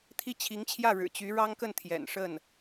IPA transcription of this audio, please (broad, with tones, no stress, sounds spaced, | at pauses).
t̪ʰ i˥˩ t͡ɕʰ i˧˥ ŋ t͡ɕʰ j ä˥˩ ɻ ɻ̩˨˩ t͡ɕ y˧˥ ɻ ɑ˥ ŋ k ə˥˩ n t̪ʰ j ɛ̰˨˩ n ʂ ə˥˩ n